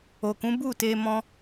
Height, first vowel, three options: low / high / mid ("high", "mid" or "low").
mid